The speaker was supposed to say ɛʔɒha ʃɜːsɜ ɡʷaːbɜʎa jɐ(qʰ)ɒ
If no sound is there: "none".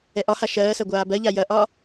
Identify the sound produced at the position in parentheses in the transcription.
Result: ʔ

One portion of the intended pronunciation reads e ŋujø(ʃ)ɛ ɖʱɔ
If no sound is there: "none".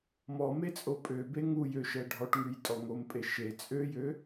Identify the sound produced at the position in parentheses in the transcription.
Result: ʃ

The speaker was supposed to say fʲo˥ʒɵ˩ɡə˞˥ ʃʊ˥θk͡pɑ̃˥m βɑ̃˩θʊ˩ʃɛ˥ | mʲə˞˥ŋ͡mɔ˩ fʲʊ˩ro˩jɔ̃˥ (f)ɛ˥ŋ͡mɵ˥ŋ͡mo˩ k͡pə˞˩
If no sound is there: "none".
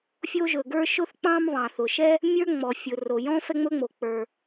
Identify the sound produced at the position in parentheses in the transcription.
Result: f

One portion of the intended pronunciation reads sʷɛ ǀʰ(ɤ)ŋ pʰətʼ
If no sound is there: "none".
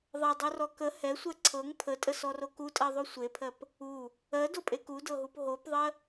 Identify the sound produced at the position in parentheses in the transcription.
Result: ɤ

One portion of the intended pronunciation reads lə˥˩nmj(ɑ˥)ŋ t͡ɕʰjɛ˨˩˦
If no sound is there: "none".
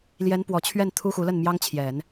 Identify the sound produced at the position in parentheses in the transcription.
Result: ɑ˥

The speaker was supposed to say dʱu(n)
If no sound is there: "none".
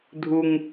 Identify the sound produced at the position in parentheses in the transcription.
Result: ŋ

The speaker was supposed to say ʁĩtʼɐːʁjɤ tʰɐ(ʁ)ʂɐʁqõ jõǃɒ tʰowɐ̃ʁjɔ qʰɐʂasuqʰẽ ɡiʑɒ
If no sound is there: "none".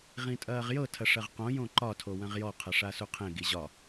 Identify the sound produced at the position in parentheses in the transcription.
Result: none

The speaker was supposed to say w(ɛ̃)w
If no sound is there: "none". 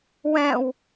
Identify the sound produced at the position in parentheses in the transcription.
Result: ɛ̃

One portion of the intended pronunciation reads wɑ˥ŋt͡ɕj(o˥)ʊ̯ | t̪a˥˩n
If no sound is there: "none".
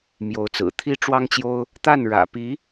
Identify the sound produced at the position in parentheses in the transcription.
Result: o˥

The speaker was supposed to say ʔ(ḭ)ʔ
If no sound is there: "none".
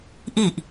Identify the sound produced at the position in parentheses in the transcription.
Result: i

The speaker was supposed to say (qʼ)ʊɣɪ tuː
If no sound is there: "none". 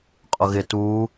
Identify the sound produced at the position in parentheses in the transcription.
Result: qʼ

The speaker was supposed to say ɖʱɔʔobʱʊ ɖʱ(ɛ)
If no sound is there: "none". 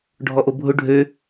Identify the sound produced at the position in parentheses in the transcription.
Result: ø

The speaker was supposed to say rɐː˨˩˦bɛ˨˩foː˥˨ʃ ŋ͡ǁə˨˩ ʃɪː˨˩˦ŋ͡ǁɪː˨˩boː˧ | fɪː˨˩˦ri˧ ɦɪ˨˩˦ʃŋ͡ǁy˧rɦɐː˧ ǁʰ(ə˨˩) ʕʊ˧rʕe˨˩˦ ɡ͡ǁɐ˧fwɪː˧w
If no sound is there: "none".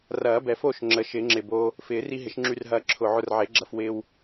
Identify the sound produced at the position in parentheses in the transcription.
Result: ʊ˨˩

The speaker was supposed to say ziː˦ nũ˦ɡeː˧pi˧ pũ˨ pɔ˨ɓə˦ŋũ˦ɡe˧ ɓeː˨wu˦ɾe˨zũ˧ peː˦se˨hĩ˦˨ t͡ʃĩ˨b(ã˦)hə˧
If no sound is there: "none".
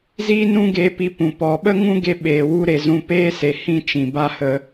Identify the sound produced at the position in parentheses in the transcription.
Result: a˦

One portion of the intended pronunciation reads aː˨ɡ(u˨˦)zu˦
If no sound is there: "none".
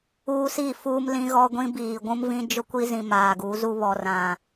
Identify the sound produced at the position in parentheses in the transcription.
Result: u˨˦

